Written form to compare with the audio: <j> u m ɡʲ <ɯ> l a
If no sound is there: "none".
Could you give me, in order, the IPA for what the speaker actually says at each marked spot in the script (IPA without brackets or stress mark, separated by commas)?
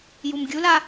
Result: j, u